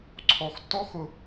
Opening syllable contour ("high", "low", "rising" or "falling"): low